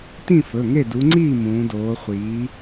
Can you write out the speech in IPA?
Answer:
t ĩ˥˨ f ɵ˩˧˩ ŋ e˥˨ d u˨˦ ŋ͡ǀ iː˥˨ m ũː˨˦ d oː˨˦ χʷ iː˨˦

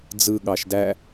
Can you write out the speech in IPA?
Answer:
d͡z ɯ ɠ ɑ ʃ d æ

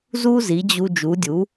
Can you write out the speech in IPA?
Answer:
z u˥ z i˩˥ d͡ʑ u˧ d͡ʒ u˩˥ dʲ u˩˥

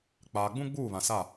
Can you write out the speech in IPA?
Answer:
k͡p aː˨ ɡ͡b ũ˦ ɡ͡b uː˦˨ β ã˨ s a˦˨

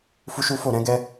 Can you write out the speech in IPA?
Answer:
f u˦ ʃ u˦ f o˦˨ ɾ ɛ̃˨˦ ɡ ɛ˦

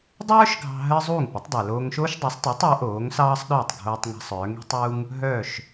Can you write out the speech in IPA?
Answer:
dˤ œː˥ ʃ ɡʱ ɑ̤˧ ɦ ɜ˥ zˤ uː˥˩ ŋ p ə˩˥ tˤ dˤ ɜ˩ l oː˧ ŋ ʃ oː˥ ʃ dˤ o˩˥ sˤ tˤ i˩˥ tˤ a˩˥ ʔ oː˩˥ ŋ s ɑː˥ sˤ ɗ œː˥˩ tˤ ɡʱ oː˧ tˤ ŋ a̤˧ sˤ œː˩˥ ŋ i̤˥ tˤ uː˥ ŋ | ɦ œː˥˩ ʃ

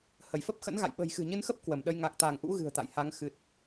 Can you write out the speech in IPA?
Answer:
h ə˧˩ j f ə˦˥ p̚ x ə̰˧˥ n ɣ a̰˧˨ j ɓ ə̤˨˩ j x ɨ̤˨˩ ɲ ɨ˧ n x ə˦˥ p̚ k w ə˧˩ m ɗ ə˧ j ŋ a˨˩ k̚ t̪ a˧˩ ŋ ʔ ṵ˧˥ ɣ ɨ̤˨˩ ə̯ t̪ a̰˧˨ j h a˨˦ ŋ x ɨ˨˩ t̚

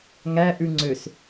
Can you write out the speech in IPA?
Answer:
ŋ æ ʔ ʉ ŋ͡ǀ ø s

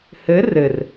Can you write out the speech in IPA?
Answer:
h ɘ r ɘ r

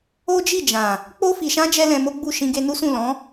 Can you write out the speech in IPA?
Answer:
o˦ d͡ʒ i˦˨ d͡ʒ ã˨ | k͡p o˧ f i˨ ʃ ã˧ d͡ʒ ɛ˦ l ɛ̃˧ m o˦ ɡ͡b u˦˨ ʃ ĩ˧ ɡ e˧ n u˦ s ũ˦˨ l ɔ̃˨˦

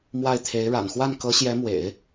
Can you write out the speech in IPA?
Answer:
m w a˥˩ ɪ̯ t̪ʰ e˧˥ ɪ̯ ɻ a̰˨˩ n x w a˥˩ n k ɤ˧˥ ɕ j ɛ˧˥ m w ḛ˨˩˦ ɪ̯

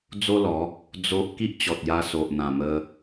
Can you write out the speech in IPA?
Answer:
d͡z o˦ l ɔ˨˦ | d͡z o˦ ʔ k i˦ ʔ t͡ɕ ɔ˨ t̚ j a˧ s o˨ ʔ n̪ ã˨˩ m ə˧

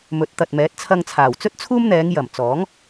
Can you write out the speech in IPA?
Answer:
m ɵ˨˥ t̚ t̪ ɐ˨ t̚ m ɛː˨˥ t̚ t͡sʰ ɐ˧ ŋ t͡sʰ aː˨˩ w t͡s ɵ˥ t̚ t͡sʰ uː˥ m n̪ ɛː˨˧ ŋ j ɐ˨˩ m t͡s ɔː˨˥ ŋ

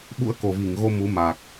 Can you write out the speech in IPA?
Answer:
ɓ ṵ˧˥ ə̯ k o˨˩ v i˧˩ ŋ ɣ o˧ m u˨˦ m a˨˩ k̚

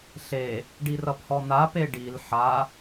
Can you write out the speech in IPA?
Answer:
ɬ e | ɖ i r ʌ p h ɔ n̪ a p e ɖ i l ħ a

